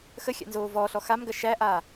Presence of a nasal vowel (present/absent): absent